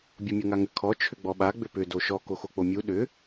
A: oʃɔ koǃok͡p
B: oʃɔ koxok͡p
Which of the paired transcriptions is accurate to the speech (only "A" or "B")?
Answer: B